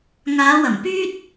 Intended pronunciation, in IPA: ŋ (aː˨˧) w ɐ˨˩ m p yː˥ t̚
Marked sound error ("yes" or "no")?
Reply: no